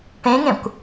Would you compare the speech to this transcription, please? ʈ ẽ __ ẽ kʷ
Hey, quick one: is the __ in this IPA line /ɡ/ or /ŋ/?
ŋ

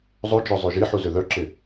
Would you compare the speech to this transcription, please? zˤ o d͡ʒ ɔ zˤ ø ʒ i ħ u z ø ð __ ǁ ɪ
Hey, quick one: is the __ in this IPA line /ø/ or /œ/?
œ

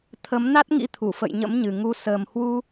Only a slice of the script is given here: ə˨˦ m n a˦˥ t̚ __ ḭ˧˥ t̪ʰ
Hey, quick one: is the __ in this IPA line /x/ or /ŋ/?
ŋ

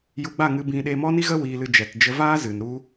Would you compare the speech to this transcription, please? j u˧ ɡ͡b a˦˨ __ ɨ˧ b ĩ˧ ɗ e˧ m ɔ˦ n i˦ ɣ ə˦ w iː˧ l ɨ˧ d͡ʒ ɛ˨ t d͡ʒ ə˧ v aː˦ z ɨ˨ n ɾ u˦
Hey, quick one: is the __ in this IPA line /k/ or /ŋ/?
ŋ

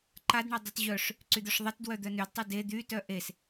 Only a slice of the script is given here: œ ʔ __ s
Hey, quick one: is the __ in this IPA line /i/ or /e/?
e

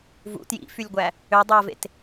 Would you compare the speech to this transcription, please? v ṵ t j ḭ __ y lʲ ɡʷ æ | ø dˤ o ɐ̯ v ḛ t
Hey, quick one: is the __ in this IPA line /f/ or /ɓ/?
f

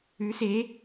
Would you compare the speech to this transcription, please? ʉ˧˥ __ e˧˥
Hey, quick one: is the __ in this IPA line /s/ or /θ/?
s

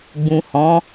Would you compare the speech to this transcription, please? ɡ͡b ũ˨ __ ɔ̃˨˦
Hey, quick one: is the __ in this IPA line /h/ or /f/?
h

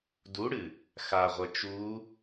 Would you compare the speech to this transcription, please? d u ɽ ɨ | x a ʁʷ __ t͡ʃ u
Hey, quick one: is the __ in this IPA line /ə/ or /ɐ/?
ɐ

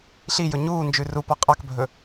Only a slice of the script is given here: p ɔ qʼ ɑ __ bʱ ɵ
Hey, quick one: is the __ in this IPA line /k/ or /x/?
k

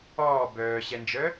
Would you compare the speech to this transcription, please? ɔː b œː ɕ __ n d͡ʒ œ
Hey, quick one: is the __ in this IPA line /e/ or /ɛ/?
ɛ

